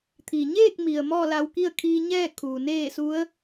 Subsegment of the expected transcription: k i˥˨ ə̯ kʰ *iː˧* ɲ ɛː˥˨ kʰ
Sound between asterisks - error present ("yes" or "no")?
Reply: no